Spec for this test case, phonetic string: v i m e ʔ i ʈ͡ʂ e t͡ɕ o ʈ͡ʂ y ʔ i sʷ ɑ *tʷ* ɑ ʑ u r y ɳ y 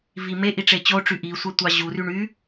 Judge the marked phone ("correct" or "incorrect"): correct